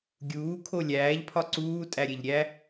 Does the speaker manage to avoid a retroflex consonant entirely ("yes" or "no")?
yes